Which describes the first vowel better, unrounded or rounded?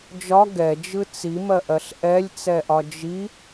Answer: rounded